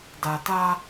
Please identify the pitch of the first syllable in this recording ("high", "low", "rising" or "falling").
low